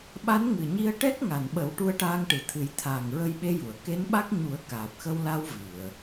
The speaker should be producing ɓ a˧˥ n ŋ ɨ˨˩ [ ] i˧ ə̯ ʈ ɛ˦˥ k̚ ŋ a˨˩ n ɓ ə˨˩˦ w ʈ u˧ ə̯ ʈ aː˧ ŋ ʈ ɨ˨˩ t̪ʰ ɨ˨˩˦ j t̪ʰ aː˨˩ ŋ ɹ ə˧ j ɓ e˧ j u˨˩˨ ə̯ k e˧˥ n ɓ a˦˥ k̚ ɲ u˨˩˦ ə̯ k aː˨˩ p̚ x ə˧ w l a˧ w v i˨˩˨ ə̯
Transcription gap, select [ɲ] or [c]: ɲ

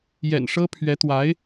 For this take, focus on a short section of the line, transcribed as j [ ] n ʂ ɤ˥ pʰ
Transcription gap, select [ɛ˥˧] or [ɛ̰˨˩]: ɛ̰˨˩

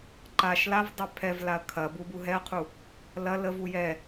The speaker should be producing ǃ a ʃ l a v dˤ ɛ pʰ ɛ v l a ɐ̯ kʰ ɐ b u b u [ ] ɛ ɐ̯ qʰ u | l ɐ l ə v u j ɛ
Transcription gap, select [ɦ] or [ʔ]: ɦ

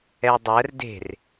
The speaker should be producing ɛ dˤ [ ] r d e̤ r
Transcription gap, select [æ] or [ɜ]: ɜ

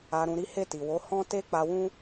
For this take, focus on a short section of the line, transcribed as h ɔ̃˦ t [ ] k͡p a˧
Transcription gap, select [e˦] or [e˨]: e˦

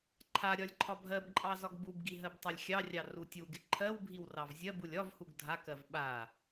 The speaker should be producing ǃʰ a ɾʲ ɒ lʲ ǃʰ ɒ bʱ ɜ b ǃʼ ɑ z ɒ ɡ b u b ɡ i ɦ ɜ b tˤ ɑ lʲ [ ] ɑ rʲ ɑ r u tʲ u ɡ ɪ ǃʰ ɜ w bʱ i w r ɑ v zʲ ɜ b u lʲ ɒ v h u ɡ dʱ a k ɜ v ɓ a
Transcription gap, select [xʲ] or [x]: xʲ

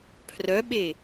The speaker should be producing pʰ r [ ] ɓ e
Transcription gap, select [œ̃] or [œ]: œ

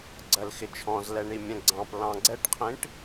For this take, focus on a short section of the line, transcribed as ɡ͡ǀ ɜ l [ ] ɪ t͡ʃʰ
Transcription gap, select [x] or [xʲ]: x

